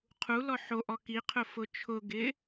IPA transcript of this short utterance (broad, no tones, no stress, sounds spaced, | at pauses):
qʰ u l ɔ ħ o ʔ ɔ k i qʰ ʊ f ʊ t͡ʃʰ ʊ ɡ ɪ